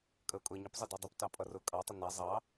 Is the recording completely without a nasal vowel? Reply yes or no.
yes